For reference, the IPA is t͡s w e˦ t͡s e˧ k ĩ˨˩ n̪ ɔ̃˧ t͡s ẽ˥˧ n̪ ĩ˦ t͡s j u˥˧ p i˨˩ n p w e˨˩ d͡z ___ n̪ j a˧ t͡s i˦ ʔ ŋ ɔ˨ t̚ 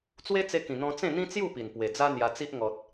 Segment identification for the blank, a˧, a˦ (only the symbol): a˦